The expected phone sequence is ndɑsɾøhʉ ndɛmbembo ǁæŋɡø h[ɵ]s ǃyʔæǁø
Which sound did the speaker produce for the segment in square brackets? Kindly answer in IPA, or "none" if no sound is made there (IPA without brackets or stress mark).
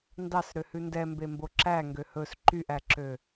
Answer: ɵ